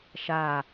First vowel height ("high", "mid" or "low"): low